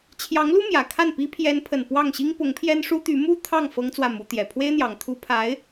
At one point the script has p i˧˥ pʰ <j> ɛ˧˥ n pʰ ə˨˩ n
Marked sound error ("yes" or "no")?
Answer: no